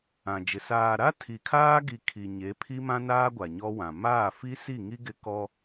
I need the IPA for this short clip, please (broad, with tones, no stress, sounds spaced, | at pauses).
ã˨ d͡ʒ ɪ˨ s aː˨ ɾ a˦ tʰ i˨ kʰ aː˦ ɡ i˨ kʰ i˨ ɲ e˨˦ pʰ i˦ m ã˦ n aː˦ ɡʷ a˨ ɲ ɔ˦ w ã˨ m aː˦˨ f i˦ s i˦˨ ŋ i˦ ɡ ɪ˦ k ɔ˦